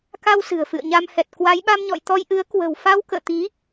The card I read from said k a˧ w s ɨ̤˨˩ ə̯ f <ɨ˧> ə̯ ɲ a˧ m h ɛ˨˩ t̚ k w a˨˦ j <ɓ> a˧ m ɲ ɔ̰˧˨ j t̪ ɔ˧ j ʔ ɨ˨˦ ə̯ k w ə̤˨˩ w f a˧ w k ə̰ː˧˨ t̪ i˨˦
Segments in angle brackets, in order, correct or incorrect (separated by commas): incorrect, correct